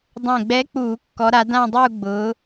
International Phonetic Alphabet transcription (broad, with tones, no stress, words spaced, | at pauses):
dˤɛ̃˨˩ɡ͡bɛ˨˦ k͡puː˧˩˧kːɔ˨˦ɾa˨˦ dã˥˧dˤuː˥˧ɡ͡bʊː˨˦